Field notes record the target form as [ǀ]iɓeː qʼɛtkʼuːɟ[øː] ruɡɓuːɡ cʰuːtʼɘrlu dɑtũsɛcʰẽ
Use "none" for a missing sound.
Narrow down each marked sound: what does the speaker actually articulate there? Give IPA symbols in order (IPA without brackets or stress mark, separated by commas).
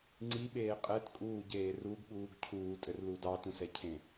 ŋ͡ǀ, eː